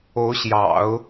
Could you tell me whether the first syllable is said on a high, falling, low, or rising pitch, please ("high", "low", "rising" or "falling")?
rising